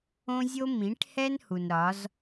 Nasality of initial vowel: nasal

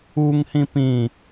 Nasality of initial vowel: oral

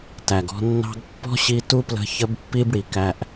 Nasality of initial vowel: oral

